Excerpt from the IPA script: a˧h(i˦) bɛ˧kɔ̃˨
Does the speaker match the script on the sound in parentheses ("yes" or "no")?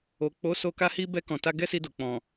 no